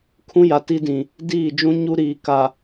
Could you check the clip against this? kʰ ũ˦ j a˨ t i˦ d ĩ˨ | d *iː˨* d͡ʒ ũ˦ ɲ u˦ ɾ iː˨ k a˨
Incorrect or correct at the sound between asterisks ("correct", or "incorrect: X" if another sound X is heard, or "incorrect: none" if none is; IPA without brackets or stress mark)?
incorrect: iː˦˨